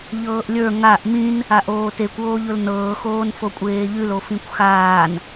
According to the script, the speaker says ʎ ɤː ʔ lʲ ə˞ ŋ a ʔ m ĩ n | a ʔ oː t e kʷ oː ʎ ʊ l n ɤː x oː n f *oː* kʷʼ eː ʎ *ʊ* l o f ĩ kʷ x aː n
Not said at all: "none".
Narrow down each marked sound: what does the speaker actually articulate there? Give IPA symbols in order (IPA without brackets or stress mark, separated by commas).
o, ʉ